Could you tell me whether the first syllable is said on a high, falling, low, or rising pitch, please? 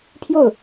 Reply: falling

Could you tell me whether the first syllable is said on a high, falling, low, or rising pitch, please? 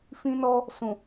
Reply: high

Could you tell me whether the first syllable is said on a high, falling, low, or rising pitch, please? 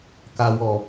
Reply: low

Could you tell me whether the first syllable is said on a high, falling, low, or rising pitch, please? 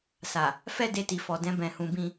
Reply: low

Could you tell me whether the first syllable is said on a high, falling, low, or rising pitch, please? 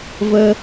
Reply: high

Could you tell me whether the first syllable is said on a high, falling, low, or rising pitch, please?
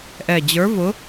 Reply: low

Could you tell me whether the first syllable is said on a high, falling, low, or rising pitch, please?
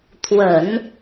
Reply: low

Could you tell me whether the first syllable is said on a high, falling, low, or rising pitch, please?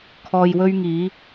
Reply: low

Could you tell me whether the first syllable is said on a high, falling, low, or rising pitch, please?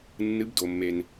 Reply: rising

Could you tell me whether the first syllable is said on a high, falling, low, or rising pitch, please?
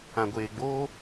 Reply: low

